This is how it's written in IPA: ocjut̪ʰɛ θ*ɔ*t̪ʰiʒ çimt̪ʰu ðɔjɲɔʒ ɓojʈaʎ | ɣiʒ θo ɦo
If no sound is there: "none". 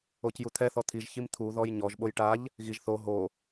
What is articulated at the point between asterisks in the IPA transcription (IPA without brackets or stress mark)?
ɔ